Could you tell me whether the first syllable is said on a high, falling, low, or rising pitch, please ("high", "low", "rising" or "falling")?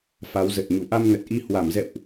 rising